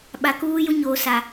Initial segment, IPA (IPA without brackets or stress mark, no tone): ɓ